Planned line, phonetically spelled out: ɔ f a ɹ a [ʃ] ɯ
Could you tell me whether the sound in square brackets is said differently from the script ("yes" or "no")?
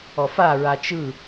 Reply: yes